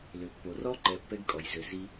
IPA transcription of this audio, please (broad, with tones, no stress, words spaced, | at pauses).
lø˨pːo˨ rɔ˦ǃɛ˨ pːɛ˦ɡkʼɔ˨j zø˨zi˦